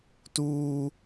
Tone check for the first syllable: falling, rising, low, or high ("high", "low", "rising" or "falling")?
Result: high